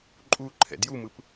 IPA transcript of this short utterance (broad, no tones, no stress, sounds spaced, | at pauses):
ǃʼ u ǃʰ ɛ̰ d j u m ɯ p